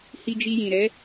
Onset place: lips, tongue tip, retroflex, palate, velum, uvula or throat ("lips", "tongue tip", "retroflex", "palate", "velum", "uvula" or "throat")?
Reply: throat